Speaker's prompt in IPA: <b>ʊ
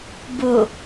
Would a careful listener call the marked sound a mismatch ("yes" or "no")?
no